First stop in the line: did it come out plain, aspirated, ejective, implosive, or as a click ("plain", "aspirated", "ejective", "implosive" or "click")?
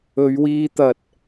plain